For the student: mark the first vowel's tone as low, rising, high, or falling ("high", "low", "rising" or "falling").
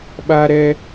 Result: high